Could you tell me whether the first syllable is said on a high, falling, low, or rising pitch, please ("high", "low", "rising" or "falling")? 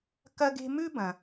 high